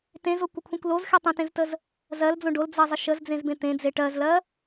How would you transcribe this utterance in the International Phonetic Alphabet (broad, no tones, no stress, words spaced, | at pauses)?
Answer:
tẽzokʷəkʷʰẽkʷ lozxe tˤə̃tẽztəz | zɜld͡zõ ɖold͡zɜzˤə ʃəzd͡zẽzbẽ t̪ẽd͡ze ʈɜzlɜ